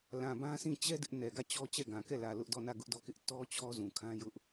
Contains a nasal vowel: yes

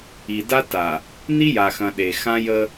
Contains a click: no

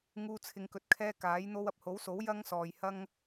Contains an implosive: no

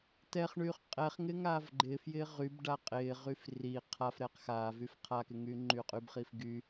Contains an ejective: yes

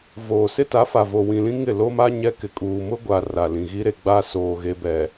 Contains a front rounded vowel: no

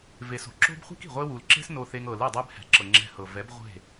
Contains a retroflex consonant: no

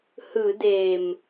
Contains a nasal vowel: no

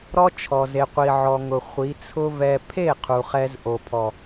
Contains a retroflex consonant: no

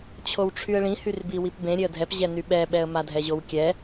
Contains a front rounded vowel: yes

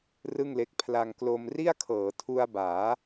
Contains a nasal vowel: no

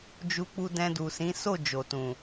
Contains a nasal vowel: yes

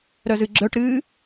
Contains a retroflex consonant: yes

